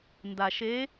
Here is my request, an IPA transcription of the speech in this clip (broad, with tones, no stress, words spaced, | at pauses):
nda˨ʃe˧˥